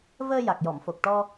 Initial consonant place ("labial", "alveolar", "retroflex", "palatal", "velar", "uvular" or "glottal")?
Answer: labial